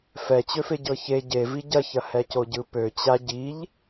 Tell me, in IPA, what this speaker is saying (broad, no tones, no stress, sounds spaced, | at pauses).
f ɛ t͡ɕ ø f e ɟ ɤ ç e ɟ e v i ɟ ɐ ç ɐ h ɛ c o ɟ ɯ p ø t͡ɕ a ɟ i ʎ